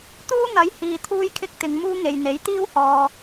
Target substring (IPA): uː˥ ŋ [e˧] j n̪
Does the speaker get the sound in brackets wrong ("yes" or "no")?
yes